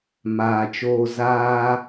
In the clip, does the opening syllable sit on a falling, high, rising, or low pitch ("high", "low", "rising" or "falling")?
low